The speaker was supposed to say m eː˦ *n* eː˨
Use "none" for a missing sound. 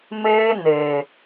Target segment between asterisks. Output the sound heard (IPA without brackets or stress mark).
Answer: n